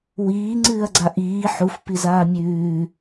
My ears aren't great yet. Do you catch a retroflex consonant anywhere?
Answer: no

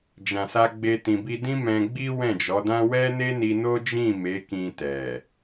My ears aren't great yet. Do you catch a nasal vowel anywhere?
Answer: yes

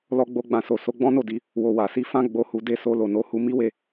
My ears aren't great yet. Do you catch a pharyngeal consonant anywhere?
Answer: no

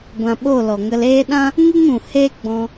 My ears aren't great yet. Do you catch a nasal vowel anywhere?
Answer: yes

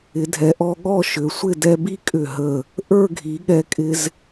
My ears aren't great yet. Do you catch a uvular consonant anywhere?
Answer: no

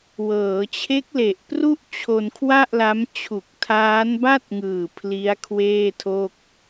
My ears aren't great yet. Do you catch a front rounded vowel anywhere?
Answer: no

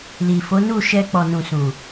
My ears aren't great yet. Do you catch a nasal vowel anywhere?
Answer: yes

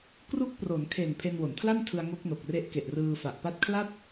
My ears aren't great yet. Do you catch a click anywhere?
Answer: no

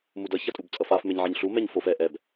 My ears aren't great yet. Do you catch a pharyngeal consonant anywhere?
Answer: yes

